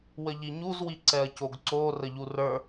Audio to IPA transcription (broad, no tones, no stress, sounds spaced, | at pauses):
w ə ʎ i ɲ u z w i ǀ ɛ ɐ̯ c o ɡ ǀ o r ə ʎ u r ə˞